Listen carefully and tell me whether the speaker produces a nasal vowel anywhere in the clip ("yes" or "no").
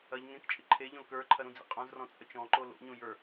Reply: yes